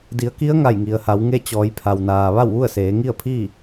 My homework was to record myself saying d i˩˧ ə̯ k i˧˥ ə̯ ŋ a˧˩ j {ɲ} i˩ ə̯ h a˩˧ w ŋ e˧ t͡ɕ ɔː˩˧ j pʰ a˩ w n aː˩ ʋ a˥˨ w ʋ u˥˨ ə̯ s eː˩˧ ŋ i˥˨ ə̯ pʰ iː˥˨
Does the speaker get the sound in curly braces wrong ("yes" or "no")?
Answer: yes